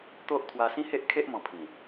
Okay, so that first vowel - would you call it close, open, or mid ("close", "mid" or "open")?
mid